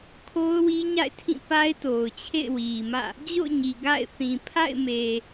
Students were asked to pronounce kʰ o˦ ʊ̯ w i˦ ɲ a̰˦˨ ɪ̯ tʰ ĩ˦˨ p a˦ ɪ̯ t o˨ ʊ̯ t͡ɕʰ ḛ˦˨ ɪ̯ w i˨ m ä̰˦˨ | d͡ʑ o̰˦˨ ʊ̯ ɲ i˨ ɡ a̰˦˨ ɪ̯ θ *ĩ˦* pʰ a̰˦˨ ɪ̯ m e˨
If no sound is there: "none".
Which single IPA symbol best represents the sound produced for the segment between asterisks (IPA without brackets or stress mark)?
ĩ˨